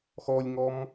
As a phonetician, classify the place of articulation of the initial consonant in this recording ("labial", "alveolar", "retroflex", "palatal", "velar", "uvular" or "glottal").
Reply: velar